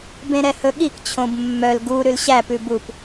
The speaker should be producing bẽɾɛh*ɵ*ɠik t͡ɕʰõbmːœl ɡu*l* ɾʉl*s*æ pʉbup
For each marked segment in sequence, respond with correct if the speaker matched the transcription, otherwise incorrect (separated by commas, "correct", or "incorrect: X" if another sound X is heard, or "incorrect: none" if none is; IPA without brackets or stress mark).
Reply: correct, incorrect: none, incorrect: ɕ